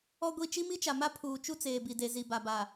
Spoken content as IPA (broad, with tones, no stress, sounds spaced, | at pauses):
ɔ˦ ɡʷ i˦˨ t͡ʃ i˦ m i˦ t͡ʃ a˨ m a˦ pʰ uː˨ t͡ʃ u˦ t͡s eː˨ b i˨ d e˨ z i˨ b a˨ b a˨